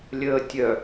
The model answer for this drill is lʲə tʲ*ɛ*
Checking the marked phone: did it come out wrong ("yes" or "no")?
yes